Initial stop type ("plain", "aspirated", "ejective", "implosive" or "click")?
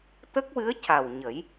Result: plain